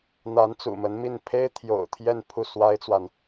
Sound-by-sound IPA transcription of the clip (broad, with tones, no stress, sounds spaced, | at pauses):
n̪ a˧˥ n t͡s ṵ˨˩ m ə˧˥ n m i˥˩ n pʰ e˥ ɪ̯ t̪ʰ j o̰˨˩ ʊ̯ t̪ʰ j ɛ˥˧ n pʰ u˥˩ s w a˥ ɪ̯ t͡s w a˨ n